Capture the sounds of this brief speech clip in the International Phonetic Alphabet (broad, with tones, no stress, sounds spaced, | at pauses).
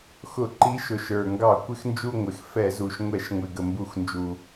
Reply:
x ʊ˧˩˧ ǃ i˨˦ ʃ ʊ˨˩ ʃ ə˞˨˩ ŋ ɡ ɑ˧˩˧ kʷ ɪ˦˨ x n d͡ʒ u˦˨ ŋʷ ɪ˨˩ x f ɛ˧˩˧ z u˨˩ ʃ ŋʷ ɛ˧˩˧ ʃ ŋʷ ɪ˨˩ ɡ ə˨˩ m b u˧˩˧ x n d͡ʒ u˨˩